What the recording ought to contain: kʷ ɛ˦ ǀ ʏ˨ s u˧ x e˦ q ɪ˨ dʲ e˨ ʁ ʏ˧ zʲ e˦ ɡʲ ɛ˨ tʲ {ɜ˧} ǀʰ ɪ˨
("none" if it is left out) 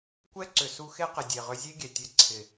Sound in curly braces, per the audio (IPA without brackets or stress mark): ɛ˧